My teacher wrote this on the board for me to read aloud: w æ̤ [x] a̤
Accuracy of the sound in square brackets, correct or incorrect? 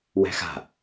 correct